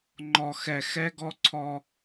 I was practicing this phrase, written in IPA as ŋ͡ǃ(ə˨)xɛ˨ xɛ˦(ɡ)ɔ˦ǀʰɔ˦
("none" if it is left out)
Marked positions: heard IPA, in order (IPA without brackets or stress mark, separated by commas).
ɔ˨, ɡ